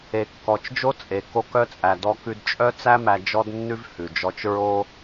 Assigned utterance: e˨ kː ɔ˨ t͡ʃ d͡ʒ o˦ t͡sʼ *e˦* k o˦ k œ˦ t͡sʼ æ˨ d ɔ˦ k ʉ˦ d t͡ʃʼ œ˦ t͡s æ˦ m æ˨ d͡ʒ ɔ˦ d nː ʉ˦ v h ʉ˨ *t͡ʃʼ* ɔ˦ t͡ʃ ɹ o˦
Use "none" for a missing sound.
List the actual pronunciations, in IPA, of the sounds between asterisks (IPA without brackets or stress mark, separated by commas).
e˨, d͡ʒ